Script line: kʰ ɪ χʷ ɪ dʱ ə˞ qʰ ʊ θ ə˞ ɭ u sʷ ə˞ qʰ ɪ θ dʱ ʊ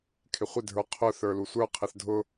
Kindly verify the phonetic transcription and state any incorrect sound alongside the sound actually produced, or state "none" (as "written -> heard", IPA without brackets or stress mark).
ɭ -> l